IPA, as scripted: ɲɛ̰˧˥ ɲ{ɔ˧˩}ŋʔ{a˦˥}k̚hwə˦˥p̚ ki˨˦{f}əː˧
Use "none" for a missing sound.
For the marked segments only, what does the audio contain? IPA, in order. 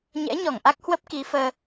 ɔ˧˩, a˦˥, f

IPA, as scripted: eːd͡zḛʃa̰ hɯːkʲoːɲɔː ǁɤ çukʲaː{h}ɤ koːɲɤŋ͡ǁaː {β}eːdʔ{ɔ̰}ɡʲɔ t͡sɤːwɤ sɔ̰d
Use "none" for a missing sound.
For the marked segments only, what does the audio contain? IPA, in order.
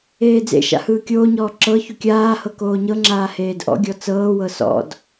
h, h, ɔ̰

